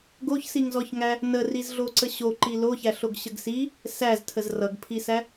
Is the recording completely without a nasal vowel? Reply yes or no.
yes